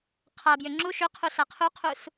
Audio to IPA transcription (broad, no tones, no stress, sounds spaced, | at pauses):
qʰ a b j ʏ ŋ͡ǁ u ʃ ʏ qʰ u ɬ a qʰ u qʰ u s